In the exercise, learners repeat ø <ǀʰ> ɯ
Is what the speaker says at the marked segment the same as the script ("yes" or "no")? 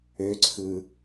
yes